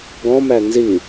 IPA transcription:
ɡ ɔ̃ m æ n z i

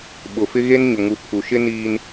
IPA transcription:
ɓ ʊ˨ f ɪ˦ ɣ e˦ n ɲ ʊ˨ ŋ u˨ pʰ u˨ ʃ ɪ˦ n iː˦ n

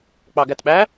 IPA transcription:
k͡p ɑ ɡ æ t ɓ æ

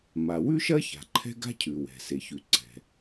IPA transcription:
m a˩ w ʉ˥ ʃ ɐ˥ ç a̤˩ ǃʰ ɛ̤˥ ɡ a̤˥ cʰ ʉ˩ w ɛ̤˩ s e˩ ç ʉ˩ ǀ ɛ̤˩

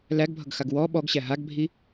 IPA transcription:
l æ ɡ bʱ ʌ ɡ x a ɡ w ɔ ɓ ɔ ɡ ɕ æ ɦ a ɡ bʱ i

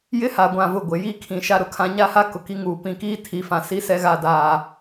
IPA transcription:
j ɪ˦ h a˨ ɡʷ ã˨ v ʊ˨ ɡʷ ɪ˨ j iː˦ kʰ ĩ˨ ʃ a˦ ɾ ʊ˨ kʰ ã˦ ɲ a˦ h a˦ k ʊ˨ k i˦ ŋ uː˨ p ĩ˨ k iː˦ tʰ i˨˦ f ã˨ s i˦ s ɛ˦ ɣ a˦ d aː˦

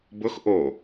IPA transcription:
b ʊ x ʔ o

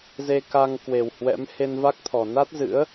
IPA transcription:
z e˧ k a˧ ŋ k w e˨˩ w h w ɛ̰˧˥ m h e˧ n v a˦˥ k̚ t̪ʰ ɔ˨˩ n a˦˥ t̚ z ɨ̰˧˥ ə̯

